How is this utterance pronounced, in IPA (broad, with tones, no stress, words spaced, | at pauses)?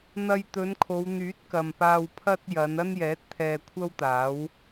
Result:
n̪ɐ˧jt̪ɵ˨˧n kʰo˨˧wn̪yː˨˥t̚kɐ˨mpaː˧w pʰɐ˧t̚ jɐ˨˧n ɐ˥njɛː˨˥t̚t̪ʰɛː˧ kʷʰɐ˥wt̪aː˨˥w